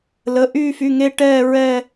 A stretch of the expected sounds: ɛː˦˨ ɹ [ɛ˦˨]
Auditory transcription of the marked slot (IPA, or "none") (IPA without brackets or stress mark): ɛ˦˨